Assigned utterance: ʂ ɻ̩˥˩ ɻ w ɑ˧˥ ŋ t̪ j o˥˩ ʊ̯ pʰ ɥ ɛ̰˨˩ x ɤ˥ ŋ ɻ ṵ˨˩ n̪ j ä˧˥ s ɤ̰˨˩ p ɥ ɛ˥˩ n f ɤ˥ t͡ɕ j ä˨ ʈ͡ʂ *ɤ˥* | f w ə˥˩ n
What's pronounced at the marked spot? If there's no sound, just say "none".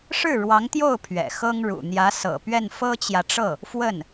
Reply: ɤ˥˩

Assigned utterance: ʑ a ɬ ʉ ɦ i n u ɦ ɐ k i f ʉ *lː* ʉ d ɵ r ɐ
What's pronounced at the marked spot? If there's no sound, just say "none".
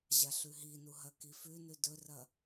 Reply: n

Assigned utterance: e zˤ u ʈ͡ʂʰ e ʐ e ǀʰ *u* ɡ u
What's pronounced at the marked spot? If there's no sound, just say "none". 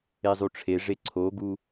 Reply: o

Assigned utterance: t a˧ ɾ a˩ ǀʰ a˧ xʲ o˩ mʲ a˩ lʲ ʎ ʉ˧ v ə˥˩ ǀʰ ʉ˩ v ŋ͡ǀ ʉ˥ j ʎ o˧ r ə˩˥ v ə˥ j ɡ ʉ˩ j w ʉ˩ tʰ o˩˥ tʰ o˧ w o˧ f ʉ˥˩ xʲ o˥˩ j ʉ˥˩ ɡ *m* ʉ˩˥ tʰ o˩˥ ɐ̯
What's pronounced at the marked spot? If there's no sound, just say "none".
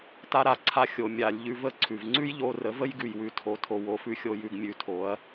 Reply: mʲ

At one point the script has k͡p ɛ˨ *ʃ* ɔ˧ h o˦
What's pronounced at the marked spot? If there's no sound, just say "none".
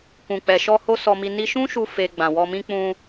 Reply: ʃ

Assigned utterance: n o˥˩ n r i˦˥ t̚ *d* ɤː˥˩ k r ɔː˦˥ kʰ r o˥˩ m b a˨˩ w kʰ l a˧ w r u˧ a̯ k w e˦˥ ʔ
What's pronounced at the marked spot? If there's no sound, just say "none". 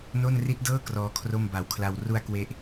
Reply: d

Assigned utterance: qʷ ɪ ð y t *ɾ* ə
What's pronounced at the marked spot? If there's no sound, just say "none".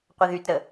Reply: ɾ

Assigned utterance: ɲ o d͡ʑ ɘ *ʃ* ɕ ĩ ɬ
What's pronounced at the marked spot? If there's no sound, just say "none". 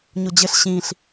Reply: ɬ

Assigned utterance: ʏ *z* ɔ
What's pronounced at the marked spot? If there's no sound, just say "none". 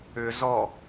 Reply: z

